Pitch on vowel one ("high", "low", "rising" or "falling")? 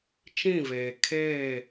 falling